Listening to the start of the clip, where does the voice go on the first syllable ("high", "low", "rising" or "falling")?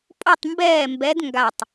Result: falling